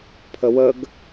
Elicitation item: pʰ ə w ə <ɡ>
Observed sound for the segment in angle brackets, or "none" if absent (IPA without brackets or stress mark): ɡ